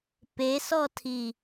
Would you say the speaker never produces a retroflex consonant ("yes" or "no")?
yes